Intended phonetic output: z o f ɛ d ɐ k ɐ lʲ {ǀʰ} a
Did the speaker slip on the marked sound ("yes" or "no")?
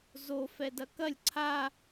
no